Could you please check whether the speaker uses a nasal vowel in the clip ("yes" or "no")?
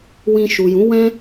yes